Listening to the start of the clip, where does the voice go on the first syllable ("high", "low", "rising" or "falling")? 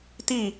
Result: falling